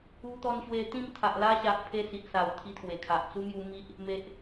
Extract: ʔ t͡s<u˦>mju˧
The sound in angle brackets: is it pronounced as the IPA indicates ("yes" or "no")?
yes